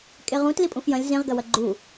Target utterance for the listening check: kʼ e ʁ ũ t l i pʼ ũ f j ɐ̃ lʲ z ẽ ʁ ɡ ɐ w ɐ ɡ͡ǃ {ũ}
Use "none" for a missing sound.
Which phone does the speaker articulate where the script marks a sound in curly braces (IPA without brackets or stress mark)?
u